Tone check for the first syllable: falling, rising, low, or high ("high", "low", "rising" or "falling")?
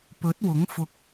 rising